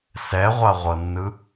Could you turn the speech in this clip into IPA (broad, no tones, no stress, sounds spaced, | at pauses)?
s ɛ ʁʷ a ʁʷ ɤ nː ɯ